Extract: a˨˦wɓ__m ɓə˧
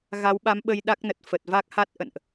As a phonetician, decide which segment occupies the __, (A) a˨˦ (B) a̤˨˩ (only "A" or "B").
A